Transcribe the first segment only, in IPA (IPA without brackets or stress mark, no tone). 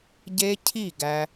ɟ